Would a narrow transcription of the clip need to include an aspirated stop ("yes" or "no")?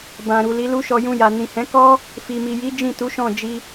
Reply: no